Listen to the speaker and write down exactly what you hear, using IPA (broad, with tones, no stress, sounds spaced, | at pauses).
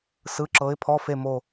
s ɯ˩˧˩ ǁ ɤ˩˧ ɪ̯ pʰ ɔ˩˧˩ f e˧˩ m o˧˩